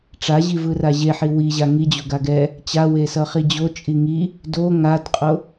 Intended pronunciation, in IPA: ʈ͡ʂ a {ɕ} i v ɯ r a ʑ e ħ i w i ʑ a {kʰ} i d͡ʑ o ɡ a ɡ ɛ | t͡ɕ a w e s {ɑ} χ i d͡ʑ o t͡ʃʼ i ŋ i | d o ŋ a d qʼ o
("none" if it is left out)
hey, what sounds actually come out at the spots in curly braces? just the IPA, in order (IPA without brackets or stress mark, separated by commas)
ʑ, ŋ, ʌ